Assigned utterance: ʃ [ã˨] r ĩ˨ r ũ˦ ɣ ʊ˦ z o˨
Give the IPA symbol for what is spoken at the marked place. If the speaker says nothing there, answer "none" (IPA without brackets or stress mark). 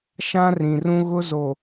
ã˦